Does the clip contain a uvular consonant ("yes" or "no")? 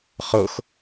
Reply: yes